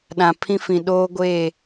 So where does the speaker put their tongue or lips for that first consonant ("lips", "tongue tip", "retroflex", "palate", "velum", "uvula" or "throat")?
tongue tip